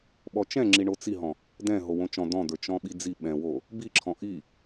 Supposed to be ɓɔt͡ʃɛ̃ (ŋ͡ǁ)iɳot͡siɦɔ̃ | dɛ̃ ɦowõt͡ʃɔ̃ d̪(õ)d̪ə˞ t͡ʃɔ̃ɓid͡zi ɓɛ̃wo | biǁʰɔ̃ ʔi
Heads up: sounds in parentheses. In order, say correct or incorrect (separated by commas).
correct, incorrect